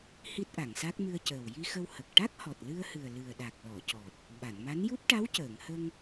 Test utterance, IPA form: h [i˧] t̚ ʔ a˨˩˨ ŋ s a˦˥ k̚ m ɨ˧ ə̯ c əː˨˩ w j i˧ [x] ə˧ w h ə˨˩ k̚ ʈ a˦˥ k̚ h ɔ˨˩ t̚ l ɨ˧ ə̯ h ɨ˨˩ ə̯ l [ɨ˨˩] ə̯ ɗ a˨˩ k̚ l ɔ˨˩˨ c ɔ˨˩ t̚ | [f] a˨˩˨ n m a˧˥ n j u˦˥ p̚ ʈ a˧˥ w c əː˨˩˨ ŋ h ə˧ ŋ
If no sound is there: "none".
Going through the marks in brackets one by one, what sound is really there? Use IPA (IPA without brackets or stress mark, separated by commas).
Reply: i˦˥, x, ɨ˨˩, ɓ